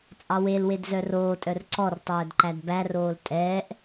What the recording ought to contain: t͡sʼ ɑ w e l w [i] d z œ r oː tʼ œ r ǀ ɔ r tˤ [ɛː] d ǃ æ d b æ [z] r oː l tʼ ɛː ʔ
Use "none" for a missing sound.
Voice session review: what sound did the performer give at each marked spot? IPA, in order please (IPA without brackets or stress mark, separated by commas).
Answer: e, œː, none